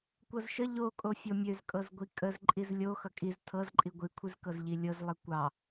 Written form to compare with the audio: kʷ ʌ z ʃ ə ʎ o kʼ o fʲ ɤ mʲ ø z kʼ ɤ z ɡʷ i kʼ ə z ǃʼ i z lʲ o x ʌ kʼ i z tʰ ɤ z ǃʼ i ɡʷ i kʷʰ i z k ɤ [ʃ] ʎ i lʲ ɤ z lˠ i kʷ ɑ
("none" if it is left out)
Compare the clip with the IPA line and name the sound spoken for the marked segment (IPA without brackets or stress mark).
z